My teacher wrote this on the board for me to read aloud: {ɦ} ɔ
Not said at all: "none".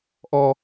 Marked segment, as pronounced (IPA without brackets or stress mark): ʔ